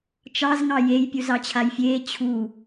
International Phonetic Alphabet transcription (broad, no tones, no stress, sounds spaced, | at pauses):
t͡ʃ ɑ z ŋ ɑ j e j pʲ u z ɑ t͡ɕʰ a j fʲ eː t͡ɕʰ u